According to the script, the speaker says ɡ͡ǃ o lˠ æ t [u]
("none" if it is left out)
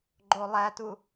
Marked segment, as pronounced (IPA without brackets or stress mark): u